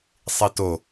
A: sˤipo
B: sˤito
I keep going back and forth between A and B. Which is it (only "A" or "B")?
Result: B